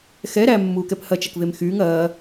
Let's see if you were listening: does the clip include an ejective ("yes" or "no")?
no